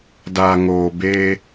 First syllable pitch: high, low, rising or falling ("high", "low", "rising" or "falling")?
low